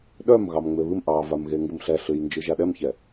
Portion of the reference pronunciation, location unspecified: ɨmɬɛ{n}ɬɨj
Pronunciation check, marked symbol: incorrect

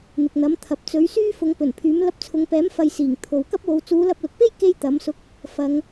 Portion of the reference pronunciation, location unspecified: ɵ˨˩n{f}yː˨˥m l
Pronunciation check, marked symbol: incorrect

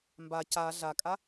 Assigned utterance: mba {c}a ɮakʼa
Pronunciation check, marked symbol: correct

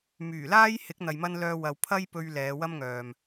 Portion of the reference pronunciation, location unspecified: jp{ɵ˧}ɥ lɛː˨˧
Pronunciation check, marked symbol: correct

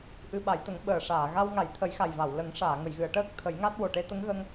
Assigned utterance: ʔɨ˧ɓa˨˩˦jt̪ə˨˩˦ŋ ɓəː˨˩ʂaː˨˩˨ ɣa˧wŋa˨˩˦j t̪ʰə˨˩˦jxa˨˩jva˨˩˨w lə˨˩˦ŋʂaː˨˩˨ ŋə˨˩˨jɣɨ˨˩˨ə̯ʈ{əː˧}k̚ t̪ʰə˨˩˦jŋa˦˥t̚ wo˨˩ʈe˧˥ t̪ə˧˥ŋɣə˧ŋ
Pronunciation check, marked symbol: incorrect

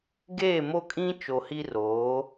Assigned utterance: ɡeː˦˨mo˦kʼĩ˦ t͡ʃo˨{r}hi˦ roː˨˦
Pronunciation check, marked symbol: incorrect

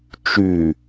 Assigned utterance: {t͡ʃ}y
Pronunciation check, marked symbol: correct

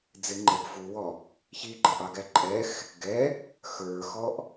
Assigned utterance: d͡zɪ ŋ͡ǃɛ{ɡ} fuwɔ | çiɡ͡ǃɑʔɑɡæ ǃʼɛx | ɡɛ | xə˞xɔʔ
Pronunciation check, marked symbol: correct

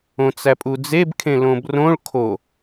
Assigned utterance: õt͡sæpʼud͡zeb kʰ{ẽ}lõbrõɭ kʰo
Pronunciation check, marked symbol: correct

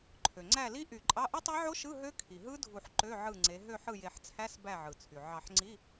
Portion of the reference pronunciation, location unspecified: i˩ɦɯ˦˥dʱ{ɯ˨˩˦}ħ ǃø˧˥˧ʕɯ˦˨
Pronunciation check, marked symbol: incorrect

